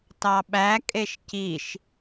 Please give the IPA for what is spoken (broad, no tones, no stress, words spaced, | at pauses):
tɑɓækʼeʃ ciʃ